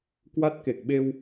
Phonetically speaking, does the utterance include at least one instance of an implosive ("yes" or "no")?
yes